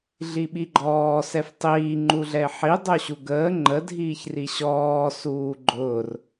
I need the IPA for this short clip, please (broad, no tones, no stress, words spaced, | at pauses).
ɮiɓiɡ͡ǃɔː sɛftˤiː ŋ͡ǃuɮɛɪ̯ħi dˤoɕuɡəː ŋ͡ǃə dʱiːçriɕɔː suːɡ͡ǃʊːr